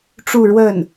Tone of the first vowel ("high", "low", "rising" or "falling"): falling